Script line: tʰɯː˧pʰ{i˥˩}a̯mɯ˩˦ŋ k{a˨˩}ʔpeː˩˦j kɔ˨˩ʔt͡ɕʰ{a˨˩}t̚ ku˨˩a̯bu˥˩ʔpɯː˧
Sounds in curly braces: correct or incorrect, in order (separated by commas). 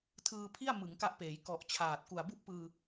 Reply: correct, incorrect, incorrect